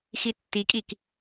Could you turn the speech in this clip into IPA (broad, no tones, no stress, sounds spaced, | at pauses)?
x i tː i kʼ i k